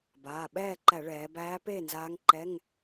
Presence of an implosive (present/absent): present